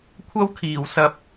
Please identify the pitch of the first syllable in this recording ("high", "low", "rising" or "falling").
high